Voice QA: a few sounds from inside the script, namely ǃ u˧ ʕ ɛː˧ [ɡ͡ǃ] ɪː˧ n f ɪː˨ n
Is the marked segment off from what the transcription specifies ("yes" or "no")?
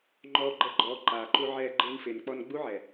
no